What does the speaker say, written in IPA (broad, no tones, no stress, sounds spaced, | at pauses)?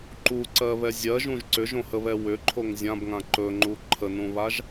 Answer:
ǃ u ǀ ɜ β ɛ zʲ ɜ ʒ ũ ʒ ǀ ʏ ʒ õ h ə β ɛ w ʏ ǃʰ o ŋ zʲ ã b ŋ ã ǃ ɵ ŋ͡ǃ u ǃʰ ə n ũ β a ʒ